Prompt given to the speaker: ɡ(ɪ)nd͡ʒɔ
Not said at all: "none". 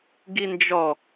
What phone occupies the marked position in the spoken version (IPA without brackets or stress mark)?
i